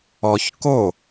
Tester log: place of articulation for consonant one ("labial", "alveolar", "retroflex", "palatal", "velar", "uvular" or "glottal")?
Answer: palatal